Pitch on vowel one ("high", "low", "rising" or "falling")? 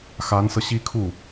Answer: rising